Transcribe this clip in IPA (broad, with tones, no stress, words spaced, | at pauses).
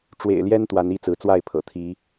ʈ͡ʂwḛ˨˩ɪ̯ljɛ˦n t̪wa˨˦ni˦ t͡sɹ̩˨˦t͡swa˥˨ɪ̯pʰɤ̰˨˩ t̪ʰi˨˦